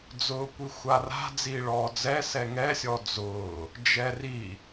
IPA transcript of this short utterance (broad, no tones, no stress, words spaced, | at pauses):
d͡zʊːkʷixʷara̤ d͡ziːɭɔːd͡zɛ sɛŋɛsʲɔ d͡zʊː | d͡ʒɛri